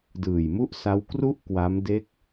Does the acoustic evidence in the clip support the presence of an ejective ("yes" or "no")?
no